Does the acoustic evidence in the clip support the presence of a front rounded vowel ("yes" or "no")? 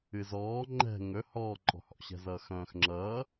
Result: yes